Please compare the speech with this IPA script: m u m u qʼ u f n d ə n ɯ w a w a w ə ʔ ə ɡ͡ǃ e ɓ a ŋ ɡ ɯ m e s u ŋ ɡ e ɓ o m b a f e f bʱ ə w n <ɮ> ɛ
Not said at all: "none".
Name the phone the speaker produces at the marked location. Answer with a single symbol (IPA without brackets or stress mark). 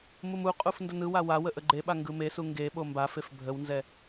z